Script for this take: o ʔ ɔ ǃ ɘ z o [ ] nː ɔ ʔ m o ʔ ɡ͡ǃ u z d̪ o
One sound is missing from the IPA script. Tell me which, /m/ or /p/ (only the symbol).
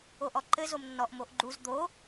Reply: m